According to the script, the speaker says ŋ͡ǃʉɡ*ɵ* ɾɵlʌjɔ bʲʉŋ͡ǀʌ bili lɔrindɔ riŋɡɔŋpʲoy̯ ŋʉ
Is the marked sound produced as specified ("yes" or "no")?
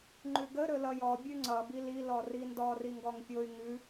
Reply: no